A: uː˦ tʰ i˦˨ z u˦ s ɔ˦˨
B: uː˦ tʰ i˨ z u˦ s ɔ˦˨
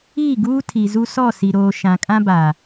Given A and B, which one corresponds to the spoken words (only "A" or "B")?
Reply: B